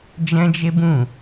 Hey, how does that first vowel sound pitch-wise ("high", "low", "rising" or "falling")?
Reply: high